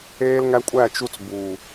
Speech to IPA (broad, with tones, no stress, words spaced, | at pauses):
eː˦lŋæ˦kʷʼæ˦˨t͡ʃu˦t͡s buː˨